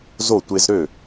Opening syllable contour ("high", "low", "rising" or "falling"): falling